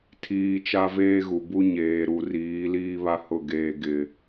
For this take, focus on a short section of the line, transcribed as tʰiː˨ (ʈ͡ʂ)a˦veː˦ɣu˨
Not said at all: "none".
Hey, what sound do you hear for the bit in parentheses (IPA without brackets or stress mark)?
t͡ʃ